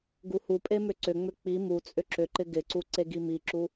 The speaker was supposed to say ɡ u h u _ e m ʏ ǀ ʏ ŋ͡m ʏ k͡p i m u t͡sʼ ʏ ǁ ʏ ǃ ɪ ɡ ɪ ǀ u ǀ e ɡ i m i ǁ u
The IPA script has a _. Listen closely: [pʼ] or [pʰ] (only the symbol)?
pʼ